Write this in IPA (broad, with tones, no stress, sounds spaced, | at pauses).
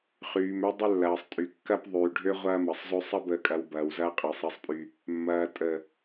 χ yː˨ m ø˦ dˤ ə˦ lː ɐː˨ sˤ tʼ y˨ kː ɐ˦ p ðˤ yː˨ ɖʱ ø˦ ʁʷ ɐː˦ m ɐ˨ sˤ z ø˦ sˤ ɐ˦ b əː˨ kʼ ɐ˨ w b ɐː˨ w z ɐː˦ qʼ ɐː˨ sˤ ɐ˨ sˤ pʼ y˨ | mː ɐː˨ tʼ ə˨